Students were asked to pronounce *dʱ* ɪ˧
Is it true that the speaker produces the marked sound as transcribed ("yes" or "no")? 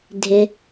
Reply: yes